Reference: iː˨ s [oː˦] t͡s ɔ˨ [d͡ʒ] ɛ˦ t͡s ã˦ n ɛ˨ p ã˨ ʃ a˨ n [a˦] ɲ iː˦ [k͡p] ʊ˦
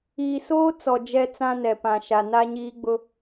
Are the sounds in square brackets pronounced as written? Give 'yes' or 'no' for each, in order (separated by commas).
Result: yes, yes, yes, no